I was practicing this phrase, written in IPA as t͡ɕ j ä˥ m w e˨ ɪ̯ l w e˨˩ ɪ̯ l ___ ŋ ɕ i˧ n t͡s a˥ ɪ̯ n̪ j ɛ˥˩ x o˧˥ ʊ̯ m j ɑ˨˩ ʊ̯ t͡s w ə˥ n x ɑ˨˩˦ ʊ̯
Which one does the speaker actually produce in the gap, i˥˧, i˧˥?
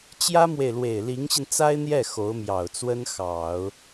i˧˥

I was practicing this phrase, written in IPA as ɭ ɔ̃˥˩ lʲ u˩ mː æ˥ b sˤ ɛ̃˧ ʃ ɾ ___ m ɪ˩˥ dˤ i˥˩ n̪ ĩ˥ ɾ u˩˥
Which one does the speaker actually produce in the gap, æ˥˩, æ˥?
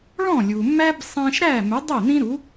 æ˥˩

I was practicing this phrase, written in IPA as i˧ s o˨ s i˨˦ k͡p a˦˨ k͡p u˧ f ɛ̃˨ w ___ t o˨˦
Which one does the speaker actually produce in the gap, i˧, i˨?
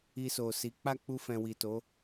i˨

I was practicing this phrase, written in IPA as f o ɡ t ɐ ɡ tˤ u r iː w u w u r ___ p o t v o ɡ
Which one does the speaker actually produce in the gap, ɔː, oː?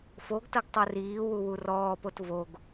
ɔː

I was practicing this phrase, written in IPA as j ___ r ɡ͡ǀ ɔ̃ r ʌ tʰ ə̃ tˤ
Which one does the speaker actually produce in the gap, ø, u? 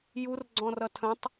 u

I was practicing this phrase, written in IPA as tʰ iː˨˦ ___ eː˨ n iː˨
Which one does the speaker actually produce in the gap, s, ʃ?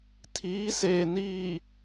s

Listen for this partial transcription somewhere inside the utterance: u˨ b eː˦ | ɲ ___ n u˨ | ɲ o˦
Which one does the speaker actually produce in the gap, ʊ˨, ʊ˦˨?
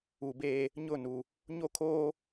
ʊ˦˨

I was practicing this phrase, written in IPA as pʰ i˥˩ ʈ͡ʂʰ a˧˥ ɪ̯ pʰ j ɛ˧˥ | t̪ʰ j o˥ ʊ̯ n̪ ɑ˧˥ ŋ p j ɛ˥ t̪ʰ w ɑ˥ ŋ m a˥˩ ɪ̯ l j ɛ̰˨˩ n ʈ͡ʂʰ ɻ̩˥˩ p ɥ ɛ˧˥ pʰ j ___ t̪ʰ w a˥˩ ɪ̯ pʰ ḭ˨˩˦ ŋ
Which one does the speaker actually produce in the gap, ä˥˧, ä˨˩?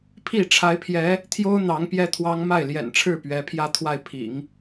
ä˥˧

